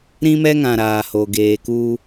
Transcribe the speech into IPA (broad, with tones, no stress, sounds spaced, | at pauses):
ɾ ĩ˦ m ɛ˦ ŋ ã˨ ɾ aː˨ h o˨ ɡ eː˨ k u˦